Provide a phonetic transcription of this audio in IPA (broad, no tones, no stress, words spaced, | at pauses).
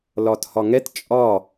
lɒthɒŋɛt t͡ʃʼɒ